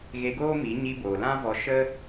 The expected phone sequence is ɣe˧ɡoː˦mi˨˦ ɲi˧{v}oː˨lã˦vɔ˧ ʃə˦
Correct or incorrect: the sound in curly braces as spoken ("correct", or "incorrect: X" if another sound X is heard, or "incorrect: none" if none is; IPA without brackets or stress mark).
incorrect: b